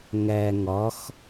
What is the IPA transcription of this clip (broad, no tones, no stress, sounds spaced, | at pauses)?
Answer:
ŋ æ ŋ ɒ x